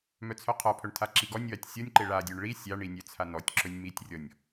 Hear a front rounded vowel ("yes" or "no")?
yes